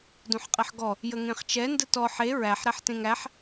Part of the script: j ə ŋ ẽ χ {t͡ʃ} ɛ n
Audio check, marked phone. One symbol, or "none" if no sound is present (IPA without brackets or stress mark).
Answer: t͡ʃ